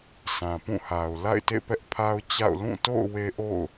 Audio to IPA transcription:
s ã˨ p ũ˦˨ h a˨ ʊ̯ l a̰˦˨ ɪ̯ t ḛ˦˨ p ɛ˦ ʔ pʰ a˦ ʊ̯ t͡ɕ a̰˦˨ ʊ̯ l ũ˦˨ t o̰˦˨ ʊ̯ w e˦ ʔ o̰˦˨ ʊ̯

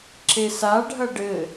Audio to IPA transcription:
ǁ e s a ɖʱ ɐ ɖ ɘ

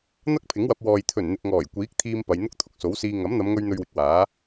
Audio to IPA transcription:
n̪ ɐ˥ k̚ pʰ ɪ˨˥ ŋ w ɐ˧ p̚ w ɔː˨ j t̪ʰ ɵ˨˩ n n̪ ɪ˨ k̚ ŋ ɔː˨˩ j kʷ iː˨˥ k̚ t̪ʰ iː˧ m p ɐ˨˧ j n̪ ʊ˥ k̚ t̪ʰ ʊ˨ k̚ s o˨˥ w s iː˧ ŋ ɐ˨˥ m n̪ ɐ˨˧ m ŋ ɵ˧ ɥ n̪ ɵ˧ ɥ w ɪ˨ k̚ w aː˨˥

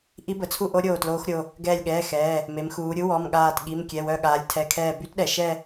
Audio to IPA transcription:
ʔ i˦˥ b ə˩˧ t͡sʰ u˥˧ ʔ o˦˥ ɾʲ oː˧˩ t l oː˦˥ x ɾʲ o˩˧˩ | ɡ ɛː˧˩ lʲ ɠ ɛː˩˧˩ x ɛː˩˧˩ | m e˩˧ m x uː˩˧ ɾʲ u˦˥ w ɔ˩˧˩ m ɠ aː˧˩ t ɠ i˩˧˩ m kʲ ɛ˩˧˩ w œ˧˩ ɠ aː˩˧ lʲ tʰ ɛ˩˧˩ kʰ ɛː˧˩ b y˦˥ t ɗ ɛ˩˧ ʃ ɛ˥˧

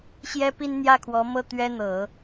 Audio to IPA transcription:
ɕ j ɛ˥ p i˥ n n̪ j ä˥˩ kʰ w ɔ˧˥ m ɤ˥˩ t̪ ɥ ɛ˥ n̪ ɤ˨˩˦

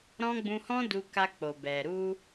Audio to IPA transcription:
ɾ ɔ̃˦ ɡ͡b ũ˧ h ɔ̃˦ d u˧ k a˧ k͡p o˨ b ɛ˨ ɾ u˧

